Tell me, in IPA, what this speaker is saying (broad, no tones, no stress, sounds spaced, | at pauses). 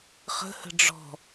χ ə̤ h ə̤ ɖ͡ʐ ɔ̤